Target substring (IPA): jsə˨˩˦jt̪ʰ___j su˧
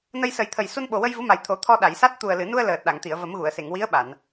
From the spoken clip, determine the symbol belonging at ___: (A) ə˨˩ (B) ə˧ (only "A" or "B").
A